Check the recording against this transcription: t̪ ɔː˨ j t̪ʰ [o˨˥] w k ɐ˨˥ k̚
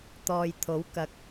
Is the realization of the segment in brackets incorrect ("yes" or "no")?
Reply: no